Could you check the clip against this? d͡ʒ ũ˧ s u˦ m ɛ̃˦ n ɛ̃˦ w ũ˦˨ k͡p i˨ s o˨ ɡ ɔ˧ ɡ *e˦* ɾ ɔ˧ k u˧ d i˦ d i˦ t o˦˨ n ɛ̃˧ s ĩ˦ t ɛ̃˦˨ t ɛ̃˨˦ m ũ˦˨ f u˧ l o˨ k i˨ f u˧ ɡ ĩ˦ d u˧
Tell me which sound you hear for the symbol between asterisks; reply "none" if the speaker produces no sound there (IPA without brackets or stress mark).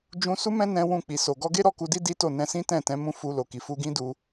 e˦